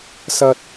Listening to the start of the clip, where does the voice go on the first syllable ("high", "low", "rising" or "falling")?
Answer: high